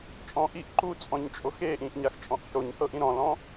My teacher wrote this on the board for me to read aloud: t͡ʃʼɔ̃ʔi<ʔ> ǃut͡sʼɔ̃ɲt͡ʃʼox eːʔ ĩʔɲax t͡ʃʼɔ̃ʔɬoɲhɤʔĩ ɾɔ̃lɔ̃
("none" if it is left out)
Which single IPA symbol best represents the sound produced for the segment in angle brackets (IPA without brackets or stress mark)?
ʔ